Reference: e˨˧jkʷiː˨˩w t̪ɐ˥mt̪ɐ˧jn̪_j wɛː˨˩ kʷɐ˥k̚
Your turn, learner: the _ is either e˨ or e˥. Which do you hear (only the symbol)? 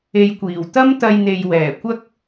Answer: e˨